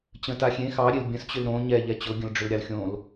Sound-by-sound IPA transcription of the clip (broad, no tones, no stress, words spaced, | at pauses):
t͡ɕə̃ taxʲẽ xɑɾʲel bʲə̃st͡ɕʏl ɾõ ɲɛʎɛ t͡ɕʊ ɡʲə̃lɖ͡ʐʏlɾʲɑlxʲõl